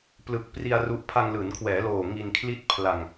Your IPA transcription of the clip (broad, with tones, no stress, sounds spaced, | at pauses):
p l ɯ˨˩ k̚ p r i˧ a̯ r u˦˥ ʔ pʰ a˧ ŋ l ɯː˩˦ n kʰ w ɛː˩˦ l oː˨˩ ŋ i˧ n kʰ l i˥˩ t̚ pʰ l a˧ ŋ